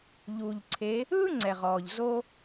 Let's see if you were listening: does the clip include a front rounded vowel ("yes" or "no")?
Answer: no